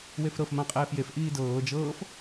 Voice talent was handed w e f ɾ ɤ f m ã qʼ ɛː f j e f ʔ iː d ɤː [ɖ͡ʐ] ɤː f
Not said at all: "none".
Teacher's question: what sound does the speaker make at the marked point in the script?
d͡ʒ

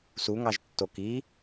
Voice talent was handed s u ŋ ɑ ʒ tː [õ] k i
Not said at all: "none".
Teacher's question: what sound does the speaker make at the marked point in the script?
o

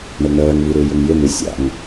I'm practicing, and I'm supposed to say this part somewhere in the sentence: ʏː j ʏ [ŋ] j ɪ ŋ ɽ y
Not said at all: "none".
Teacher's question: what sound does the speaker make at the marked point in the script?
ŋ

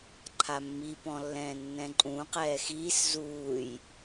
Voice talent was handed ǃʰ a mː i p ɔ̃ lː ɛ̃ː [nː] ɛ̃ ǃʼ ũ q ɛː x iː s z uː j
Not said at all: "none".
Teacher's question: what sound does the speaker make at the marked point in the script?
nː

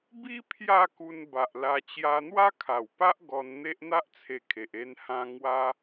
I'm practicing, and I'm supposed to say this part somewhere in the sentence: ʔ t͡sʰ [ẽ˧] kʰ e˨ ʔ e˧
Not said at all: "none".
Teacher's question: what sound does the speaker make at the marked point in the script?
e˧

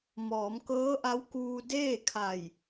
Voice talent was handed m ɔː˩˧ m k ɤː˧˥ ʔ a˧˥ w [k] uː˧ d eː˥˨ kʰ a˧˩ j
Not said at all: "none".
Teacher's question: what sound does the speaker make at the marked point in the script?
k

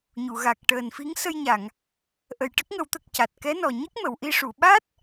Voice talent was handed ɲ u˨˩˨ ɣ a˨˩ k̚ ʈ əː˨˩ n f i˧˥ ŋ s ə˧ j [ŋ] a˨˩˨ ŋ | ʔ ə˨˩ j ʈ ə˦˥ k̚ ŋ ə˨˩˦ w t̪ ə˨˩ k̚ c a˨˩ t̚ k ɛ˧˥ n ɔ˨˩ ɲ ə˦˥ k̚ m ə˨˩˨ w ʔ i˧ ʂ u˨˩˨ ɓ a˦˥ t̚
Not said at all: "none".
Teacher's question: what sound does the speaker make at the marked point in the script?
ɲ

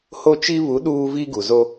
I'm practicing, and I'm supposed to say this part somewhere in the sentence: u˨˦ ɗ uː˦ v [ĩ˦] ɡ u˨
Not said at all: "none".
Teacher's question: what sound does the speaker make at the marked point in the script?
i˦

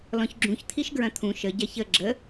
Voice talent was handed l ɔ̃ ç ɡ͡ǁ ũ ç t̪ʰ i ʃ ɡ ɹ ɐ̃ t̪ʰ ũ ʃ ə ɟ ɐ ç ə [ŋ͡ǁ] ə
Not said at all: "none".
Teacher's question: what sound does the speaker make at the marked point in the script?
ɡ͡ǁ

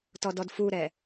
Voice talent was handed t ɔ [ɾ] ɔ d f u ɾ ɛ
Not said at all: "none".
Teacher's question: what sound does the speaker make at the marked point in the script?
d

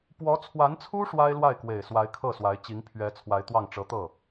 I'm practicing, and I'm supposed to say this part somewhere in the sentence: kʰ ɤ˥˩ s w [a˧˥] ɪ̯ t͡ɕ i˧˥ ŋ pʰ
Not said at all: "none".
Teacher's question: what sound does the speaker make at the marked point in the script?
a˧˥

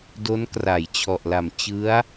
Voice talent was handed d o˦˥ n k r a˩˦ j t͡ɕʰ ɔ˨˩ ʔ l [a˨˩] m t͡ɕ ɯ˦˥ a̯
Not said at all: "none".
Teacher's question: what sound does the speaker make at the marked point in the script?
a˨˩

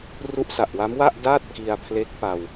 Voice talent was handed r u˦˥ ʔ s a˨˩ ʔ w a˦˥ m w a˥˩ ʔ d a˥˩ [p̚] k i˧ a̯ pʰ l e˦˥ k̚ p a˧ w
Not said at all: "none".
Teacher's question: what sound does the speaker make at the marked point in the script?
t̚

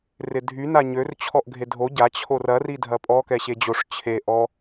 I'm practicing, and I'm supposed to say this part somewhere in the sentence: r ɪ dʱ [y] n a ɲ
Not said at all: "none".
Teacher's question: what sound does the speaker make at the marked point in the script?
y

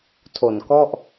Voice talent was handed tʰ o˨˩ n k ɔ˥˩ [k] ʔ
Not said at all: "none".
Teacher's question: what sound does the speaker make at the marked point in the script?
none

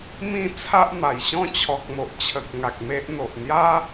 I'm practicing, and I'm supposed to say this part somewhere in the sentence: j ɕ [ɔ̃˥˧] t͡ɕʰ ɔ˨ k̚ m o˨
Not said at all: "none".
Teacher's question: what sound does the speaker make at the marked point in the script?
ɔ̃˥˧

